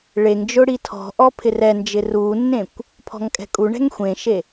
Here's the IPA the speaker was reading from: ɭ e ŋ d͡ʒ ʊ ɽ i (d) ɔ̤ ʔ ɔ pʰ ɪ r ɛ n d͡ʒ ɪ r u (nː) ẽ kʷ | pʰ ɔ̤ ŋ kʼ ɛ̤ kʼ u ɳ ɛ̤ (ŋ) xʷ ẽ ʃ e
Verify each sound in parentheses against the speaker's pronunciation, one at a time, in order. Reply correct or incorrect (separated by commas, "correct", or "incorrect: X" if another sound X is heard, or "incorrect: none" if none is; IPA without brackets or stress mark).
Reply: incorrect: tʰ, correct, correct